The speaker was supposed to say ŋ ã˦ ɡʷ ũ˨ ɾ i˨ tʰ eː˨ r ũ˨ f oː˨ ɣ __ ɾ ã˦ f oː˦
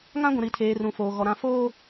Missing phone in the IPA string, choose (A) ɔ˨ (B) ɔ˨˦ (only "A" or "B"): A